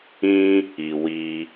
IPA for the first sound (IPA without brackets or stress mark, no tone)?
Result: ĩ